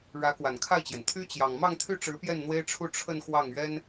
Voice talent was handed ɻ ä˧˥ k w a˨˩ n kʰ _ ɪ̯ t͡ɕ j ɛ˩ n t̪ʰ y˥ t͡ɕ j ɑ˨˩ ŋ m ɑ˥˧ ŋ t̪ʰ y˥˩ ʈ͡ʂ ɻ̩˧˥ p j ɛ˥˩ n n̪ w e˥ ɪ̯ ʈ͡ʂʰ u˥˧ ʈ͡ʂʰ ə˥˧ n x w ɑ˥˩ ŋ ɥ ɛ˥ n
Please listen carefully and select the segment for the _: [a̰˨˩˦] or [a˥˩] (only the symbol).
a˥˩